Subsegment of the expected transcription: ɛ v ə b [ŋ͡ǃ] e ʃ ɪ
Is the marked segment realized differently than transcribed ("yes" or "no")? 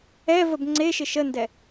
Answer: yes